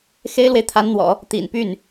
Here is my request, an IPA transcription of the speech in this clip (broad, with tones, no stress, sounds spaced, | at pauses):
x e˥ ɪ̯ l w e˨ ɪ̯ t̪ʰ a˧˥ n n̪ w ɔ̰˨˩˦ | t̪ ḭ˨˩ n p y˥˩ n